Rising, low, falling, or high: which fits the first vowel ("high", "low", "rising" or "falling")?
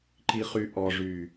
low